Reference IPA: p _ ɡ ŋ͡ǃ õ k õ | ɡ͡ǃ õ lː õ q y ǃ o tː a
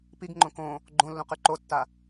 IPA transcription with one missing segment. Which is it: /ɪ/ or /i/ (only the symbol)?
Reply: i